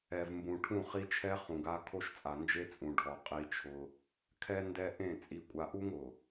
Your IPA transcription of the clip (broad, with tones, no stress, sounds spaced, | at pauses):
ɛ˨ v m b ũ˨ ʈʰ ũ˦˨ χ i˦ t͡ʃʰ ɛ˦ χ ũ˨ ɡ a˦ kʰ o˦ ʃ t͡sʼ a˨ n d͡ʒ e˦ t͡sʼ ũ˨ ɖʱ ɔ˨ qʼ i˦ t͡ʃʰ ʊ˦ | kʰ ɛ˦ n d ɛ˦ ʔ ẽ˦˨ t͡sʼ i˨ kʷʼ a˨ ʔ u˦ ŋ ʊ˨